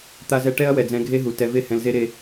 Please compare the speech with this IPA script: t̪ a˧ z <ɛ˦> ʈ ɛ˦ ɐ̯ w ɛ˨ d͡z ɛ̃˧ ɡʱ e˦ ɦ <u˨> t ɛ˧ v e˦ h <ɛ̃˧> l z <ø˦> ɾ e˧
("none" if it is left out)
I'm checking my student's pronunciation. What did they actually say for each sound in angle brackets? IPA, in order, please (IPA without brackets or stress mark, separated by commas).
ɛ˧, u˨, ɛ̃˧, e˦